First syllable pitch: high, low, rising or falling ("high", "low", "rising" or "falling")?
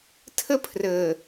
high